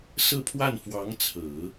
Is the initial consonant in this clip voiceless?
yes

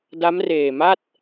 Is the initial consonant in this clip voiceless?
no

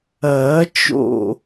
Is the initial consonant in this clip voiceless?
yes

